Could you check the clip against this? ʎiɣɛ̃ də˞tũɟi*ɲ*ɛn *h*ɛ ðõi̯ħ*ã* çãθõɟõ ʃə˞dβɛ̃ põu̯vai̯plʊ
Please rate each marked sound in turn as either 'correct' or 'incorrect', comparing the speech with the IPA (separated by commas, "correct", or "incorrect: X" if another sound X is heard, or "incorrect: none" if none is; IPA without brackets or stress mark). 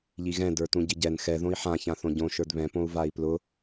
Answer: incorrect: ɟ, incorrect: x, correct